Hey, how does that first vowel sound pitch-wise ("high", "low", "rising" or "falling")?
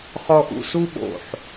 low